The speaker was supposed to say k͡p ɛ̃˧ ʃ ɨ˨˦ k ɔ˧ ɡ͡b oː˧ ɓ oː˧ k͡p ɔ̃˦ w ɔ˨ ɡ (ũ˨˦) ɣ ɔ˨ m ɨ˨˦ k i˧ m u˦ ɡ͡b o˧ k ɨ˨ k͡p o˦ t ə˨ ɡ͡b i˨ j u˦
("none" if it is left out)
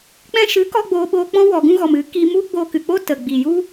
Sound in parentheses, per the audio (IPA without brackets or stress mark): ũ˧